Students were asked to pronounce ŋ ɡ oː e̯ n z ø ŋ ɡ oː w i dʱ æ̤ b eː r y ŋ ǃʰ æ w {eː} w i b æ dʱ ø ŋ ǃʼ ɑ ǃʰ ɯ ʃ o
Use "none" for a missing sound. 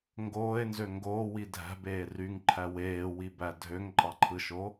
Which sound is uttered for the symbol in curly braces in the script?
eː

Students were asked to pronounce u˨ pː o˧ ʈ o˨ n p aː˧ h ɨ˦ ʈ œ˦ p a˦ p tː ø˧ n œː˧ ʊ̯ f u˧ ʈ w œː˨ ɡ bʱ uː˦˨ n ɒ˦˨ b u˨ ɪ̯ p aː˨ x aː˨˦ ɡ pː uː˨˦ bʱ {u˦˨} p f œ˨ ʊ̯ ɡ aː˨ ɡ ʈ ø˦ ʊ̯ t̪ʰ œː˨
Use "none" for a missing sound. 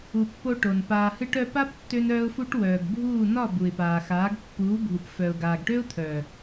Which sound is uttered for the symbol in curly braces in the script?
u˨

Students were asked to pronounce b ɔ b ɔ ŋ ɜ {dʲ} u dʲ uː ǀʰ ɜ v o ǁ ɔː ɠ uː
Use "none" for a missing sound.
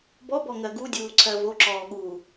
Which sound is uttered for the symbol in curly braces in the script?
ɡ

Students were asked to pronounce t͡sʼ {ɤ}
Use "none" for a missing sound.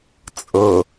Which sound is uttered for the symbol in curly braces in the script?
ɤ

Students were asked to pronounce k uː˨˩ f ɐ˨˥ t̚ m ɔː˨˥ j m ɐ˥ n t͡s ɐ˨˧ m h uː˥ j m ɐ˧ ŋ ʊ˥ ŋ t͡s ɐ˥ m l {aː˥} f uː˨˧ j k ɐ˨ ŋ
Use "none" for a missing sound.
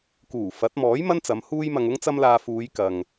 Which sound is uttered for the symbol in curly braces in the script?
aː˧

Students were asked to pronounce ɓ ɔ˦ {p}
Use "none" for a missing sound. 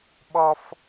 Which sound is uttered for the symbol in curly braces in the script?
f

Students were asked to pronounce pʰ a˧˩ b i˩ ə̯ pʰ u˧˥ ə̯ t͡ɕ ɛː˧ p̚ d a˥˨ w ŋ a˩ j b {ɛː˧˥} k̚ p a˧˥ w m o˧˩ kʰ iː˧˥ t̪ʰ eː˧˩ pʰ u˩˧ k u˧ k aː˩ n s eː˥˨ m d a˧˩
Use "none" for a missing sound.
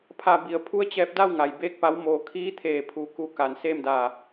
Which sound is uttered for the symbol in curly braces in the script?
eː˧˥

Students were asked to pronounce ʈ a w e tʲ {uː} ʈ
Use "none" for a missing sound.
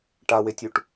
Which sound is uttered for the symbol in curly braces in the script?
u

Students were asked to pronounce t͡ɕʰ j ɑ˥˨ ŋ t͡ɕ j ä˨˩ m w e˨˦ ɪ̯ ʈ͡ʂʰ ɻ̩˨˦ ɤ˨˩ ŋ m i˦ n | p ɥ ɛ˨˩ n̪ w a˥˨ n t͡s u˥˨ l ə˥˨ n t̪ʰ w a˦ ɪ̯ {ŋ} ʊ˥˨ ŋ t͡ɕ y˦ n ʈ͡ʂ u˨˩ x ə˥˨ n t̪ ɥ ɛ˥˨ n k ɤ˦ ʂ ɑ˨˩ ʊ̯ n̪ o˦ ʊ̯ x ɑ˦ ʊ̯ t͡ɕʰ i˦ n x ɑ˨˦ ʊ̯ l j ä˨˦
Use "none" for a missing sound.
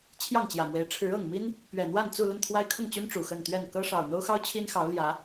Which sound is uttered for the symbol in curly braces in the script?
kʰ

